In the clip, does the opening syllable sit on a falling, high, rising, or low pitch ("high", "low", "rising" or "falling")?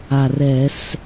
low